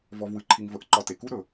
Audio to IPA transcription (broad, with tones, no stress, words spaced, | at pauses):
vɔ˨vwɨ˩ǃʰi˨ŋ və˨ʔǃɒ˨ te˩ku˥ɾɵ˩